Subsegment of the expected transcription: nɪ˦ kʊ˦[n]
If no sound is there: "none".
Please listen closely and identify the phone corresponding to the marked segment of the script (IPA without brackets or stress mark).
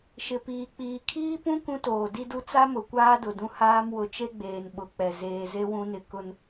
n